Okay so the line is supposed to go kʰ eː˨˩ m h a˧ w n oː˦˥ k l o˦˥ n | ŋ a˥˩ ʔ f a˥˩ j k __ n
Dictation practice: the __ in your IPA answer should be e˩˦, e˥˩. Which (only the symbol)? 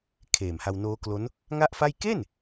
e˥˩